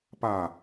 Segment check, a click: absent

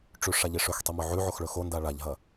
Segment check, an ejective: absent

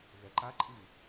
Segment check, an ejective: present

